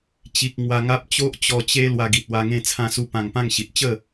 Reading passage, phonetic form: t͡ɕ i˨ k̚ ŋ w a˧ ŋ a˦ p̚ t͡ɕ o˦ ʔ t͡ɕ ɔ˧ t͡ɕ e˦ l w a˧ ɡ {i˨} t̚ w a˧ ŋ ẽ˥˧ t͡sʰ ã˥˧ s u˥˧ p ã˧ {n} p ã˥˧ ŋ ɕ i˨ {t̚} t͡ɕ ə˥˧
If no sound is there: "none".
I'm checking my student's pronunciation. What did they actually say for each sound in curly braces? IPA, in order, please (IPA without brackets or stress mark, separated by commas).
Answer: i˨, ŋ, t̚